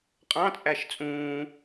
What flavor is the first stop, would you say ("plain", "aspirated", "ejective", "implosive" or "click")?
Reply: ejective